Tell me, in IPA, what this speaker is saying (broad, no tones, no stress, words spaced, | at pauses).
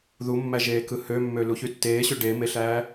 ðumːæʒeː kɯhømːø luçytːeːɕø ɖemeɬæː